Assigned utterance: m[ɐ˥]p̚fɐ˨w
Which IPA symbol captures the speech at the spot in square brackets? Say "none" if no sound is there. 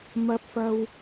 ɐ˨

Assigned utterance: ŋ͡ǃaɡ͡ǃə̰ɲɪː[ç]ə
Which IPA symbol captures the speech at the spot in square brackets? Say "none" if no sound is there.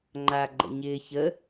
ç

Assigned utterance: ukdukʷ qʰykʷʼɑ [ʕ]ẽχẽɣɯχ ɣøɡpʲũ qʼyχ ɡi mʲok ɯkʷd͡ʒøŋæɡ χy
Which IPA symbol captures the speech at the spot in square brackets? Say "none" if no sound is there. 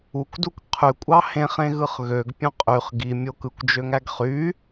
h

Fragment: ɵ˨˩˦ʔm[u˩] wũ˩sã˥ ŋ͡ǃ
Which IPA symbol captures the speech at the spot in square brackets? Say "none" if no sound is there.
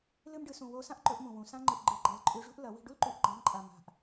ũ˩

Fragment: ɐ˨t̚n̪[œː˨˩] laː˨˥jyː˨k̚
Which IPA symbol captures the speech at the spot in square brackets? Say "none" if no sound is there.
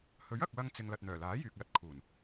œː˨˩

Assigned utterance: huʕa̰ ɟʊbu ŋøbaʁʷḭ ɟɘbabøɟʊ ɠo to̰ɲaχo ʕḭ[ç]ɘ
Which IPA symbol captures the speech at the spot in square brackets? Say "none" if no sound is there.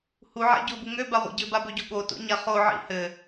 h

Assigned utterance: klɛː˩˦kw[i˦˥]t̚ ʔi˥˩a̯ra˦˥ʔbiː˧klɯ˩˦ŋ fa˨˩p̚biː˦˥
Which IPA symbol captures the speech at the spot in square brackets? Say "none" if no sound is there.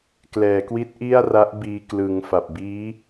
i˦˥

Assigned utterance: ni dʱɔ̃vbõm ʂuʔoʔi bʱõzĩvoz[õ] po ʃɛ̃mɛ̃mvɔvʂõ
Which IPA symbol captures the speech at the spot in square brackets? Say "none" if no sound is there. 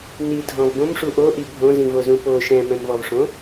ũ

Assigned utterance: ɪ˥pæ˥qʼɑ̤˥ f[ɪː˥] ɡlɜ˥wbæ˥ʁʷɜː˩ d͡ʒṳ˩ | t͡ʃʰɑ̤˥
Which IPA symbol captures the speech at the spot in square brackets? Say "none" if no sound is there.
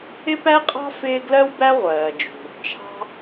ɪː˥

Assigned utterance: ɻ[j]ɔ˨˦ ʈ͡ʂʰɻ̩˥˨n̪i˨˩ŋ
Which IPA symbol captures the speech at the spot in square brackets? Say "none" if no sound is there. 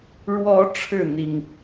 w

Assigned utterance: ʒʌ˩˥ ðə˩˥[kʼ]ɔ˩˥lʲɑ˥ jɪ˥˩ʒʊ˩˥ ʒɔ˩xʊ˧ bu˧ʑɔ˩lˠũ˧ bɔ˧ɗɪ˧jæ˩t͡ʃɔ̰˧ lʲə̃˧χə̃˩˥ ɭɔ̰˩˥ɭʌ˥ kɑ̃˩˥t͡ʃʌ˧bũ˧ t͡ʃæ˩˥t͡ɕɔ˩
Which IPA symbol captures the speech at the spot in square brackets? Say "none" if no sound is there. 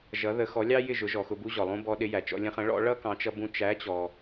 x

